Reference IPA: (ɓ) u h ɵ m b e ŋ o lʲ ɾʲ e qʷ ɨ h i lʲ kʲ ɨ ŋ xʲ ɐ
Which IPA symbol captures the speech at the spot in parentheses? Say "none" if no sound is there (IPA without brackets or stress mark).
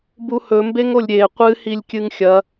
b